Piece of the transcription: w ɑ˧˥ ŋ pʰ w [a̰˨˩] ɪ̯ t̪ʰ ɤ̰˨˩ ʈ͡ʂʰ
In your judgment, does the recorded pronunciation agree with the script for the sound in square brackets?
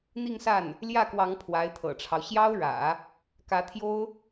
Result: no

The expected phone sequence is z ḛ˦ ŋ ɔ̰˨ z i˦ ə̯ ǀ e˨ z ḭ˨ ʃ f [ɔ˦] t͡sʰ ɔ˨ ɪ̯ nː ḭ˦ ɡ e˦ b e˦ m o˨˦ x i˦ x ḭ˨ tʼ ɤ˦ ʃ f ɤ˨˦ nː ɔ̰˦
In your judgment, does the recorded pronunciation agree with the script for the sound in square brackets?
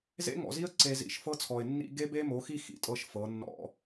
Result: no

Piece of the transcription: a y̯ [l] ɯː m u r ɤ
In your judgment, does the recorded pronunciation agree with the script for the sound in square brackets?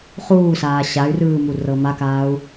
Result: no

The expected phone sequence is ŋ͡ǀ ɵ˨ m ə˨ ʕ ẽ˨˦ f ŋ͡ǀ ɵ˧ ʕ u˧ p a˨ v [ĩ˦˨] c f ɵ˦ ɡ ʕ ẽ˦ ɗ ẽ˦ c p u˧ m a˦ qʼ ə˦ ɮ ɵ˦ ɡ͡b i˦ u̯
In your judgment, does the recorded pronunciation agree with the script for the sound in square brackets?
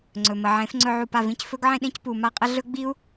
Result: yes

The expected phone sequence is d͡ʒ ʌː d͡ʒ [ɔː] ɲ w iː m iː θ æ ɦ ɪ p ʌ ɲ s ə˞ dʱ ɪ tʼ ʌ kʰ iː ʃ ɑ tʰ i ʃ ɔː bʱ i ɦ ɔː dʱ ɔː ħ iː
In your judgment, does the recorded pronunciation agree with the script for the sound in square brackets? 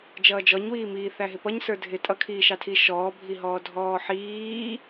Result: no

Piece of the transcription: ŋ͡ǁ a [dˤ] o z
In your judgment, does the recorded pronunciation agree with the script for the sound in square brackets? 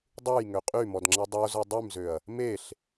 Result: yes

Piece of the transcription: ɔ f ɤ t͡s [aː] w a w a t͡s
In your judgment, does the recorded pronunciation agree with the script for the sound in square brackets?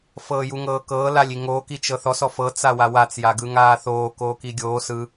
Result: no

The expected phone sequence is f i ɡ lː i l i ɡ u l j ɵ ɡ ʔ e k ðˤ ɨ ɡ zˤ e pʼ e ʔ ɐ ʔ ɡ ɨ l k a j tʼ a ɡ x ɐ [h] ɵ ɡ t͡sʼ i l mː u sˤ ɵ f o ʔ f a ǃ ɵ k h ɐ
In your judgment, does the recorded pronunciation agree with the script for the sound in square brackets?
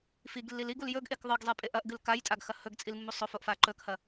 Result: yes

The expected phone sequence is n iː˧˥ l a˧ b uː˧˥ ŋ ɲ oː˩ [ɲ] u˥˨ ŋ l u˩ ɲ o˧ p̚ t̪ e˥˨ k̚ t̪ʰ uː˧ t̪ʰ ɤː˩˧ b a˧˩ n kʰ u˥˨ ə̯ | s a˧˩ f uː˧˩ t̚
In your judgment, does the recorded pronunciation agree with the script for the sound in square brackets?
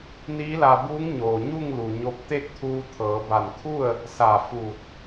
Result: yes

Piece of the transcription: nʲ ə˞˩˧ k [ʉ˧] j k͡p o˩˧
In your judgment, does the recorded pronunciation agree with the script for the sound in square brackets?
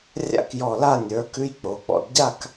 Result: yes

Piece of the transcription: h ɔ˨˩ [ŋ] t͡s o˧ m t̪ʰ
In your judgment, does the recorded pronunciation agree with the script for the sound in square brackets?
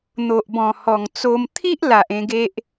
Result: yes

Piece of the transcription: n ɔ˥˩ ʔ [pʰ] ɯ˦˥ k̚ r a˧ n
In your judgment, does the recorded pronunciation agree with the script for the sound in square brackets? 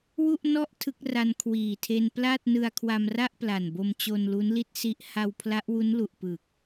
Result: no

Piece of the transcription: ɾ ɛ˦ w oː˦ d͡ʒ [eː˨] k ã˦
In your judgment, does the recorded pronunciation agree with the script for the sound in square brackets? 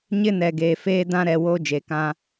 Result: yes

